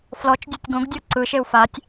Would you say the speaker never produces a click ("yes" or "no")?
no